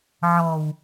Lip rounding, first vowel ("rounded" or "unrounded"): rounded